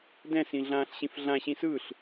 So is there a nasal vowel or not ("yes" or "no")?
yes